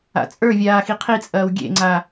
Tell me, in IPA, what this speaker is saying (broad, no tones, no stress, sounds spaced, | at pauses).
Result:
a̰ t͡sʼ ə˞ vʲ aː x i qʰ i t͡sʼ ɐː w ɡʲ ḛ ŋ͡ǀ a